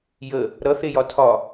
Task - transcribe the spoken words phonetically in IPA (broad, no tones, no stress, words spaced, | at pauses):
jə | ɾʌθejɒ tʰɒ